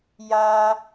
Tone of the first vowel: high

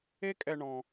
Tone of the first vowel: high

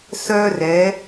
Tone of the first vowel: high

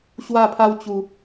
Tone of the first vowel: falling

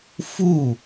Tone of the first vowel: falling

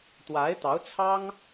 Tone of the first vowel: rising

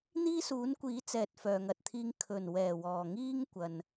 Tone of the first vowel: high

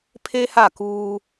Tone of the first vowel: high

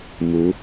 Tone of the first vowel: rising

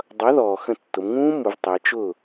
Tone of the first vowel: rising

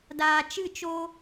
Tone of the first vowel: low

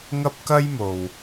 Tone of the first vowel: high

